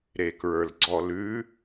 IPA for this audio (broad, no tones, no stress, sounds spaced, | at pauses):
ɾ e k ɹ ə˞ l ɡ͡ǀ ɔ l ʉ